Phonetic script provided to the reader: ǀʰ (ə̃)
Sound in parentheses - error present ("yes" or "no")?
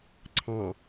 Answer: yes